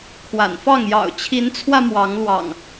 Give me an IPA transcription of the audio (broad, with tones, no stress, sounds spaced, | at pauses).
kʰ w a̰˨˩ n f ɑ˥˨ ŋ j ɑ̰˨˩ ʊ̯ t͡ɕʰ i˨˦ n t͡sʰ w ä˧ m w ɑ˨˦ ŋ l w ɑ̰˨˩ ŋ